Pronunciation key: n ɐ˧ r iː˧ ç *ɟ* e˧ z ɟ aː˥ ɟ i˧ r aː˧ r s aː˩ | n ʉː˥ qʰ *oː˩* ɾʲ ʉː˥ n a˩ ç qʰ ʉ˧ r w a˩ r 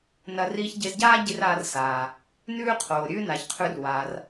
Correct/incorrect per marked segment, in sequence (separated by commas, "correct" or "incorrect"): correct, correct